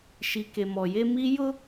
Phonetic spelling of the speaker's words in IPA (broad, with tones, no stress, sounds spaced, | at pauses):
ʃ i˨ k e˨ m ɔ˨ j e˦ m i˦ j ʊ˦